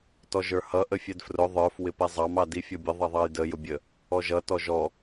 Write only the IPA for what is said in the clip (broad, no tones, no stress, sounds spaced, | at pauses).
t ɔ ʒ ə˞ h ʌ ʔ ə fʲ ɛ d f r ʊ ðˤ ə˞ f w ɪ p ɛ zˤ ɑ m ɑ d i fʲ ɔ bʲ ə ðˤ ʌ ðˤ ɑ j d ə j ʊ bʲ ə | ɔ ʒ ʌ t ɔ ʒ ɔ